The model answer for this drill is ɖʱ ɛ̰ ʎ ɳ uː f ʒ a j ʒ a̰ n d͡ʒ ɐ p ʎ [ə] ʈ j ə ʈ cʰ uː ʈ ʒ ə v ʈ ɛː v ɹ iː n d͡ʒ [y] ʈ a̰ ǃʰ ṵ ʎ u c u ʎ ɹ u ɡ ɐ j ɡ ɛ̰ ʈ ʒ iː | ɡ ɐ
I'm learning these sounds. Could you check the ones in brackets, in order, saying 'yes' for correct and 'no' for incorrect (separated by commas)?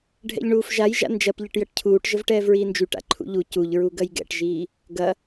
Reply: yes, yes